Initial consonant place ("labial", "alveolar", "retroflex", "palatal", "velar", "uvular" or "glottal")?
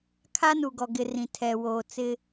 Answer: velar